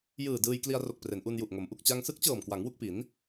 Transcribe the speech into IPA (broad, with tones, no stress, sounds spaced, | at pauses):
j ɯː˨˩ d ɯː˧ j k l i˧ a̯ r o˨˩ k̚ p r e˩˦ n ʔ u˧ n j u˨˩ ʔ ŋ o˩˦ m ʔ u˨˩ k̚ t͡ɕ a˧ ŋ s ɯ˦˥ k̚ t͡ɕ ɤː˨˩ m k w a˩˦ ŋ w u˥˩ k̚ p i˩˦ n